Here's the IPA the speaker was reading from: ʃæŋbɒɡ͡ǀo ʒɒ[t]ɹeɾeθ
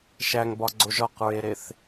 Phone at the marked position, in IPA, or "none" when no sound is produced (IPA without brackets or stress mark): q